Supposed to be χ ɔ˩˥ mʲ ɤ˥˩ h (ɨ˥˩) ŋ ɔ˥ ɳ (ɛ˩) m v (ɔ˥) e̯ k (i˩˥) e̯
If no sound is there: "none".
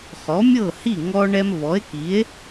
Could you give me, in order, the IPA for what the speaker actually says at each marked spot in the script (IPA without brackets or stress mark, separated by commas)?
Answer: i˥˩, ɛ˥, ɔ˩˥, i˩˥